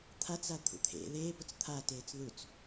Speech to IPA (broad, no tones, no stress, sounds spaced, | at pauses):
t̪ʰ a t͡s a t̪ʰ ṵ t̪ʰ ḛ ð eː p ʊ t͡s t̪ʰ a t eː t͡s ð u t͡s